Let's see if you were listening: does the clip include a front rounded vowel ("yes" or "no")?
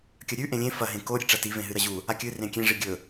no